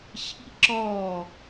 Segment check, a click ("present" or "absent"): present